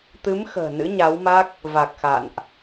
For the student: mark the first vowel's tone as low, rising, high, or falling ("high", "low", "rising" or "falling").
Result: rising